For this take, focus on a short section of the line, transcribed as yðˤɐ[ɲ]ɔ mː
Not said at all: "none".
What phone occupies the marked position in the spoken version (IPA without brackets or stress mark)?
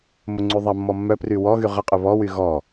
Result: mː